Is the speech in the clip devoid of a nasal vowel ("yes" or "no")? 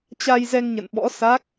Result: yes